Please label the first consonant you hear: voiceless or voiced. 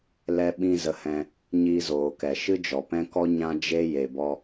voiced